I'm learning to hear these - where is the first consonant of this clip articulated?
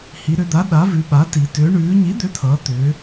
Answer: throat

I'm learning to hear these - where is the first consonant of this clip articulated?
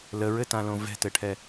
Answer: tongue tip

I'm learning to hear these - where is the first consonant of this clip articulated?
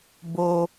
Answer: lips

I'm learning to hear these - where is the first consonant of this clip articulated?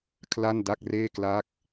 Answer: velum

